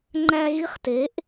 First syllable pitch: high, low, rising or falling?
high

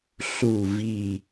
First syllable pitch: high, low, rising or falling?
low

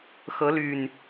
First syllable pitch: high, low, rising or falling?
rising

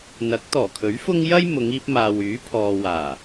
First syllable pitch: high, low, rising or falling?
rising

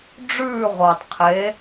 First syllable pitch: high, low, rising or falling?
falling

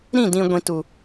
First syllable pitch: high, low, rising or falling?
falling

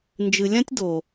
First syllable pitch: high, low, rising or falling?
low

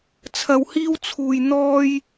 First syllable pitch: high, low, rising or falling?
low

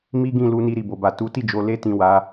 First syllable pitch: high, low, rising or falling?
high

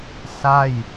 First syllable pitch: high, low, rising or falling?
falling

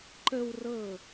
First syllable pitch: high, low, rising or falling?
high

